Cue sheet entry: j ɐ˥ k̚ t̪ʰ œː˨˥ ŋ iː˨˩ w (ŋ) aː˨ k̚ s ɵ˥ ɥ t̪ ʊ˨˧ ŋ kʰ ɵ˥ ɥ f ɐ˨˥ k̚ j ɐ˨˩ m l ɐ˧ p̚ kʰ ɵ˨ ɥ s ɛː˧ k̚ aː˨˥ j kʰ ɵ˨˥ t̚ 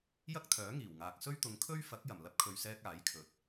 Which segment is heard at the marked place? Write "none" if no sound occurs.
ŋ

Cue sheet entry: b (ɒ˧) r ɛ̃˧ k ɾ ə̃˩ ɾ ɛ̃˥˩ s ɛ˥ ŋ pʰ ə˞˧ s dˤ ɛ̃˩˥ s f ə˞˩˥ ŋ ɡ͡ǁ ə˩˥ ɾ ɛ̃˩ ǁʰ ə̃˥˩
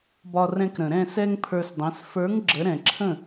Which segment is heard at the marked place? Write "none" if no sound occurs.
ɒ˧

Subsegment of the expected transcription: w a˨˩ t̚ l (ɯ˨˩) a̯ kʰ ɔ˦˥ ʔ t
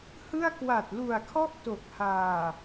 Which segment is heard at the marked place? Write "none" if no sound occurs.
u˨˩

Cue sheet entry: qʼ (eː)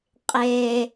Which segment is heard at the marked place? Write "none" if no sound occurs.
eː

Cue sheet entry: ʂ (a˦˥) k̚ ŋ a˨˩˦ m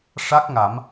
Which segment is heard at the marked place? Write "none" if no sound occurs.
a˦˥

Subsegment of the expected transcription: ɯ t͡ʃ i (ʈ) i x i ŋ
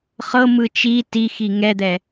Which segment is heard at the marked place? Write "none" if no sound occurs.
t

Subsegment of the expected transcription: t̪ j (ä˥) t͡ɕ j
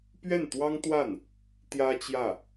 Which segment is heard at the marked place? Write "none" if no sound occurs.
ä˥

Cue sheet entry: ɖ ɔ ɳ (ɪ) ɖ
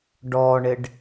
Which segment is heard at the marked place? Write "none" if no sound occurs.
ɪ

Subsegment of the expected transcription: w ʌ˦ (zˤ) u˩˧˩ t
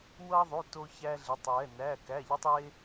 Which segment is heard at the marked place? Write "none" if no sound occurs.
ðˤ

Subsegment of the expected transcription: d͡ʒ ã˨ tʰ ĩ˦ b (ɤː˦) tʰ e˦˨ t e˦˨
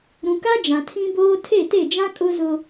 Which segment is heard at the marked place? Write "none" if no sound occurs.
oː˦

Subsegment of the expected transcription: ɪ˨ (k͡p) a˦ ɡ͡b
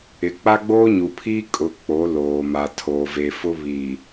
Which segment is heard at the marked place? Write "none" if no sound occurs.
k͡p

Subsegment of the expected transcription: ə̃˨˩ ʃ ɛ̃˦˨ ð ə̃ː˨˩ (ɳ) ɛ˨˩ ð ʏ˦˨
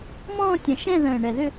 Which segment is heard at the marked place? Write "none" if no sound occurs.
ɳ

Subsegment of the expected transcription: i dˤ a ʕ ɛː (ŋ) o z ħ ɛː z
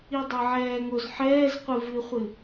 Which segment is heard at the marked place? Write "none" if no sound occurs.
ŋ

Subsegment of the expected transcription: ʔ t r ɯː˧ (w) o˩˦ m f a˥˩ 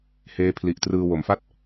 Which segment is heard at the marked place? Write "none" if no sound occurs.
w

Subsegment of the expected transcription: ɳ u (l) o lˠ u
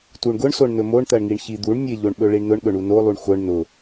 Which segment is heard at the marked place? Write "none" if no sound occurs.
n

